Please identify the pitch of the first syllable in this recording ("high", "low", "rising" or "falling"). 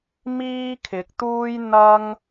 high